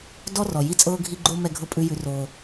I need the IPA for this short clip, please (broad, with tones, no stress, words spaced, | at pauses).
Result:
dɔ˦rɔ˨ ji˦t͡sʼɤː˦ɡʱi˦ ɡ͡ǃo˦ mɛ˦ɡʱɤ˦pʼʉ˦ jʉ˦roː˦